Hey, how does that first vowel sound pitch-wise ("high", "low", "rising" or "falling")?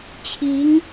rising